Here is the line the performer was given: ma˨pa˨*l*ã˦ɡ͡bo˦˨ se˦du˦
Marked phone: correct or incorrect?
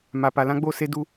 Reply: correct